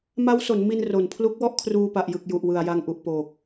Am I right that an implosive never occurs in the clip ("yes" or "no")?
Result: yes